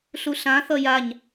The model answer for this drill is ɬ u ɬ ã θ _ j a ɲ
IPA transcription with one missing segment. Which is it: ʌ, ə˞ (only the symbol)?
ʌ